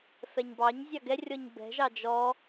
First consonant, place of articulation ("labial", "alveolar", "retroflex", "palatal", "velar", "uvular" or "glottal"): labial